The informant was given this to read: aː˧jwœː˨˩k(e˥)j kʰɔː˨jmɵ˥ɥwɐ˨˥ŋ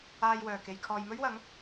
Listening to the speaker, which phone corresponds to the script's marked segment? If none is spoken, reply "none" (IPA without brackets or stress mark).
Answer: e˨